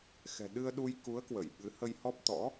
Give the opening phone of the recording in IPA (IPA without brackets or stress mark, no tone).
x